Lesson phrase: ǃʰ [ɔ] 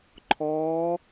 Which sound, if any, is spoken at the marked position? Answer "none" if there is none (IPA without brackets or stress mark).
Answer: ɔ